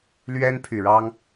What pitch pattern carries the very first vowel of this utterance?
high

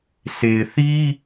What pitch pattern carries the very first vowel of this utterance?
low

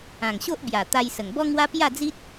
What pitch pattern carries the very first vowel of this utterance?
low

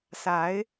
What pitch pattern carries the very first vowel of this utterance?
rising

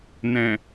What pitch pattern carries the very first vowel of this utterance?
low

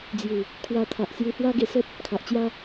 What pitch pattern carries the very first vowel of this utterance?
low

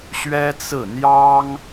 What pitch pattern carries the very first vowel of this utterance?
high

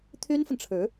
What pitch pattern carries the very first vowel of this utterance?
high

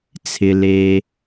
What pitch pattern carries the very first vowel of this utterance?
low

